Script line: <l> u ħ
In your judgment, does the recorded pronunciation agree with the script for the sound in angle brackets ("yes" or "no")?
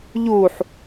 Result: no